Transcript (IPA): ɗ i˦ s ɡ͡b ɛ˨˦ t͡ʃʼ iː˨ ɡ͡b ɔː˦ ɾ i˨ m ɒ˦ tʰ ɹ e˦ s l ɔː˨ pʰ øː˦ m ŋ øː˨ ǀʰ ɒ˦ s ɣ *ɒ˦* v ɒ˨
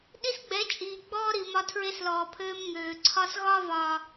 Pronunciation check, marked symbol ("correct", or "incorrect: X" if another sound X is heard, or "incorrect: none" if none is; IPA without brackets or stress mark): correct